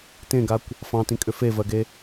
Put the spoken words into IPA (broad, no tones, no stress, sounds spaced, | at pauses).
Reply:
t ẽ ɡ a kʷ | f ɑ̃ t ĩ kʼ ʏ f e v ɜ ɡ e